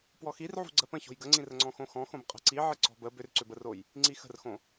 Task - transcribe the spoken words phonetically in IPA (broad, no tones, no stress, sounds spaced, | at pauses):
p w ɔ x i r ʕ ṳ ɡ͡ǀ ɜ p ə̃ ç o̤ j ɡ ə ŋ͡ǀ ĩ r ə ŋ͡ǀ ɔ̃ x õ x ɔ̃ x õ b qʼ ə̤ ǀ i ʕ ɘ ǀ ɔ̤ b ə b ʏ r ǀ ʏ b ə r o j | ŋ͡ǀ i x ə̤ r x õ